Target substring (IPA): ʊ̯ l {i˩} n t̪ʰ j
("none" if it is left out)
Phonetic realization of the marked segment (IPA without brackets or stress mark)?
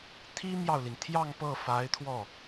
i˩